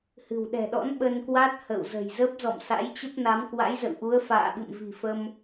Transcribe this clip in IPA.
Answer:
h ɨ̤˨˩ w ɗ ɛ̤˨˩ ɗ ɔ̰˧˥ n ɓ ə˧ n k w a˦˥ t̚ h ə̰˧˨ w z ə̤˨˩ j z ə˦˥ p̚ z ɔ̰˧˨ m s a̰˧˥ j t͡ɕ ə˦˥ p̚ n a˨˦ m k w a̰˧˥ j z ə̰˧˨ w ʔ u˨˦ ə̯ f a̰ː˧˨ ɓ ɨ̰˧˨ m v i̤˨˩ f ə˧ m

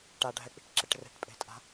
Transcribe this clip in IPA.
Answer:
ʈ a ɖʱ ɛ k͡p i̤ ʈ ǁ e ʈ r e̤ ʈ pʼ e̤ tʼ a̤

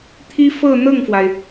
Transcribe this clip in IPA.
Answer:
t̪ʰ i˥ f ɤ˥˧ n̪ ɤ˥˩ ŋ f w a˩ ɪ̯

